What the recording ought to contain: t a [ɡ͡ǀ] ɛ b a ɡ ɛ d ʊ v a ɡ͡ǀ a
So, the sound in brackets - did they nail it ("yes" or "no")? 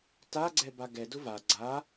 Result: yes